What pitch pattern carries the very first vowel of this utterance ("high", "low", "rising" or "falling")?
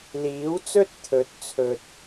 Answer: rising